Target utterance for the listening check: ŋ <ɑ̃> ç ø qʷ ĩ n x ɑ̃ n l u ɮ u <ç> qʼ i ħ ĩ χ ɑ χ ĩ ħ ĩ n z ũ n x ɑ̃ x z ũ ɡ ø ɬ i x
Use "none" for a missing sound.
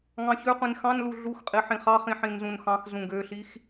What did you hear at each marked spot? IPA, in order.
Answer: ɑ̃, x

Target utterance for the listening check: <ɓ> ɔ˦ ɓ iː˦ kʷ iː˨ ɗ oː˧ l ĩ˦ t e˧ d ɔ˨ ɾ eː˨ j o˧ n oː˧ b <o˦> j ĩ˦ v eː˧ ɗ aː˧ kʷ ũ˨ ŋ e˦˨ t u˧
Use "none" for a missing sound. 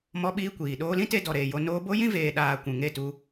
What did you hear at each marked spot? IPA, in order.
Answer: m, o˦

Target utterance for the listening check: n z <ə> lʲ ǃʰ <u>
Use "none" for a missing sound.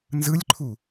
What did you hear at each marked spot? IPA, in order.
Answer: ɯ, u

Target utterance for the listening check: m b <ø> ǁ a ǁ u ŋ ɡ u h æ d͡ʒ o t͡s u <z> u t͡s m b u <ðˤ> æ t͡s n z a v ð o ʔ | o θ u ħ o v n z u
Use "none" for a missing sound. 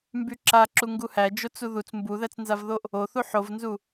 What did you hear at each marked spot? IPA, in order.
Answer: y, ð, ð

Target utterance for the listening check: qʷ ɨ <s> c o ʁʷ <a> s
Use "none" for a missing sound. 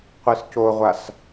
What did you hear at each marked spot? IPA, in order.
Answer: s, a

